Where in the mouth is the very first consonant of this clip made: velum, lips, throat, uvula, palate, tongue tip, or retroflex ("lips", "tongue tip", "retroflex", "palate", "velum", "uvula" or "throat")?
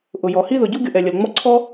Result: throat